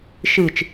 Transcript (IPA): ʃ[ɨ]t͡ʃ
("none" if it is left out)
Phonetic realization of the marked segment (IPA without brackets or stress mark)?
ɨ